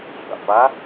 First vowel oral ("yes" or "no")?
yes